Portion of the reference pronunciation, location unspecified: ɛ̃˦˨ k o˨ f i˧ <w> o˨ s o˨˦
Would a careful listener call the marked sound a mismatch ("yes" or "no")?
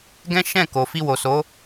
no